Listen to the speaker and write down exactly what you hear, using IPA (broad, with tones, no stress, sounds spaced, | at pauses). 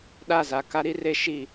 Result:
ɗ a˦˨ z a˨ k a˦ ɾ i˦ r e˦ ʃ i˦˨